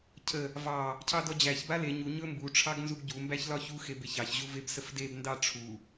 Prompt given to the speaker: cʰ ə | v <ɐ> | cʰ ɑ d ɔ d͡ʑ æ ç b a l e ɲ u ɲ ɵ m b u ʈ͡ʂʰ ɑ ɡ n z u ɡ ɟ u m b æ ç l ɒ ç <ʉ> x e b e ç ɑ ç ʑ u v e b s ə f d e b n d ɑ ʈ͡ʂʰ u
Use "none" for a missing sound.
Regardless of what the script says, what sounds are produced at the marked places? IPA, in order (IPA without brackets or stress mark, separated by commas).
ɑ, u